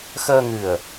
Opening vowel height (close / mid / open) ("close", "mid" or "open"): mid